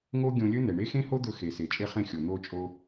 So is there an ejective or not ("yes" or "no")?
yes